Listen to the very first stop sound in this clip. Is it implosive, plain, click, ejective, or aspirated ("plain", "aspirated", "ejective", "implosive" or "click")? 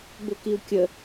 plain